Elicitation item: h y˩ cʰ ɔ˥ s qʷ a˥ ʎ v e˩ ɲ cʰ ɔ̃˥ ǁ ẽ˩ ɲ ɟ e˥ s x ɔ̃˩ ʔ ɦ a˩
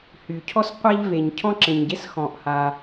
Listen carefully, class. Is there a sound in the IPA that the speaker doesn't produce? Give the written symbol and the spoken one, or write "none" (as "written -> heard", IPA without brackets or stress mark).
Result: ɦ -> h